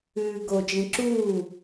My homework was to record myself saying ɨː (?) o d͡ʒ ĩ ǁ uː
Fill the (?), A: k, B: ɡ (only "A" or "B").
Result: B